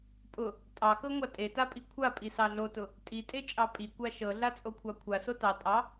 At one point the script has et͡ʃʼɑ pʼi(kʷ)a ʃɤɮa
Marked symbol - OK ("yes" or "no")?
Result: yes